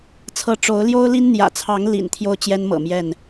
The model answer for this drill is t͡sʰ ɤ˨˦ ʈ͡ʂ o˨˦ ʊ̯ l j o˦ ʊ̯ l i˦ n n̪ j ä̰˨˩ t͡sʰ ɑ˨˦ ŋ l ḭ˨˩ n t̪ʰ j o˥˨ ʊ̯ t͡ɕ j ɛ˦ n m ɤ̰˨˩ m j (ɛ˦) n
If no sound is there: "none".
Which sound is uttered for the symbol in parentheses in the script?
ɛ˥˨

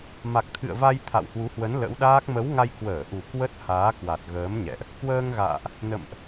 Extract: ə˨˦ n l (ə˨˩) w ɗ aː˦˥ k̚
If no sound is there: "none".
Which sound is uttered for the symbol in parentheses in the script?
ə̰˧˥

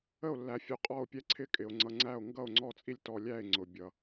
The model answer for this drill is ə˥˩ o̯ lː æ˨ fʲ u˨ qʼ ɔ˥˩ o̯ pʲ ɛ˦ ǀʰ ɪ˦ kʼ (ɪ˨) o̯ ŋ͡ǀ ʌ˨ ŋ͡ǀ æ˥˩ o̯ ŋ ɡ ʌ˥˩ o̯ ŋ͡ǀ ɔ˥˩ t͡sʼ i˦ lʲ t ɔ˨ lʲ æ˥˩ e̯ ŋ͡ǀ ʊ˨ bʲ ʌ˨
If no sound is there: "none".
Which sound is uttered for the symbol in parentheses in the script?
ɪ˨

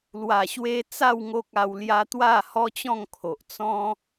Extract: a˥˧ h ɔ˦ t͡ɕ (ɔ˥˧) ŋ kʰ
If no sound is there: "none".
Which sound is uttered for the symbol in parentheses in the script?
ɔ̃˥˧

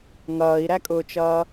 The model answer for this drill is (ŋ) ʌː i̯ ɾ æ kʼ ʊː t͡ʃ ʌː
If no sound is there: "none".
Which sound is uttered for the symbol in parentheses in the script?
ŋ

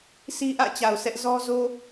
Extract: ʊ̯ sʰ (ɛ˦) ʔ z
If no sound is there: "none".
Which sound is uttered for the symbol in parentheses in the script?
ɛ˦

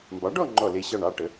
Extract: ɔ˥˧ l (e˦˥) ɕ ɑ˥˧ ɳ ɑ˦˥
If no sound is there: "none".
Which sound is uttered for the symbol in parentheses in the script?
e˦˥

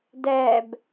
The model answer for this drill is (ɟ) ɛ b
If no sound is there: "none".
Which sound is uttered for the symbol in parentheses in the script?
d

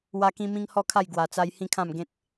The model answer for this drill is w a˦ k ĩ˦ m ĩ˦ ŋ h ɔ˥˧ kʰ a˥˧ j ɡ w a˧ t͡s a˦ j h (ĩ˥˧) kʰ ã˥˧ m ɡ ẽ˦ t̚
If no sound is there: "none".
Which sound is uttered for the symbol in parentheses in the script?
ĩ˥˧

